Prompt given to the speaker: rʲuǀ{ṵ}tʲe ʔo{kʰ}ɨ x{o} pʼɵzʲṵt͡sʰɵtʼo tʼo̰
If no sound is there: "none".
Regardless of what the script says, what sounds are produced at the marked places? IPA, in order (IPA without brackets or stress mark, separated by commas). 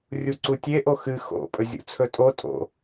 u, x, o̰